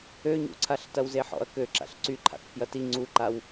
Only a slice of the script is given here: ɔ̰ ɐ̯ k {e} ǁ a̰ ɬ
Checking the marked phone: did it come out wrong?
yes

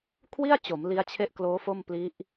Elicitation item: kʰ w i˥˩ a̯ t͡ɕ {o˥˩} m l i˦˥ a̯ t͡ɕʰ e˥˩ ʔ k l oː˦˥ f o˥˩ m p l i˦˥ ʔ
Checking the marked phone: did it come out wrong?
yes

